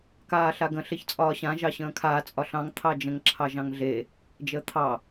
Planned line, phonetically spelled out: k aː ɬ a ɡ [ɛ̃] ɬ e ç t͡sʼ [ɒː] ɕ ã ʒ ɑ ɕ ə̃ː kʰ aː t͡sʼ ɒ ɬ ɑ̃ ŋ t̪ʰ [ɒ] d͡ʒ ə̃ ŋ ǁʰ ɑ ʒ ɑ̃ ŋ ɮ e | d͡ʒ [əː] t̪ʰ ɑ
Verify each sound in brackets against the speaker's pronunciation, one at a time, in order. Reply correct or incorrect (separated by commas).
incorrect, correct, incorrect, correct